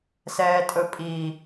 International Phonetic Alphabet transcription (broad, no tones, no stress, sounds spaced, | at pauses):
s ɛː tʼ ɵ pʼ i